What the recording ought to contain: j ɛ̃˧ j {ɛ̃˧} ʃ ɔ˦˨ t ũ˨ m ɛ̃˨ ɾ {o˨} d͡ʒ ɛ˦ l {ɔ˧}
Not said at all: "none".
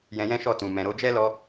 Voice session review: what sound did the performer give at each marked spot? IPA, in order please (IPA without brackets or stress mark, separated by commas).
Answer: ɛ̃˦, o˧, ɔ˧